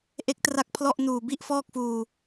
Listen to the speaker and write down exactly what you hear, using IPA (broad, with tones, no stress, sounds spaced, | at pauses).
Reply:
ʔ e˦˥ k̚ t r a˦˥ k̚ pʰ l ɔ˥˩ ʔ n uː˨˩ b i˥˩ ʔ f ɔː˥˩ k̚ f uː˧